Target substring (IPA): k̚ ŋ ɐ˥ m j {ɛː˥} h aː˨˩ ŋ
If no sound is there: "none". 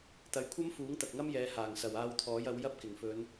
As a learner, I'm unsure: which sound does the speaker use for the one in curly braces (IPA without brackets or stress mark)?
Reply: ɛː˨˧